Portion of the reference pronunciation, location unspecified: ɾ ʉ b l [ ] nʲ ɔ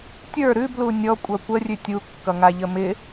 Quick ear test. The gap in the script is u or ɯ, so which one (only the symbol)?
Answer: u